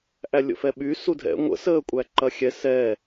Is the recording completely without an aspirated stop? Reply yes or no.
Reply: yes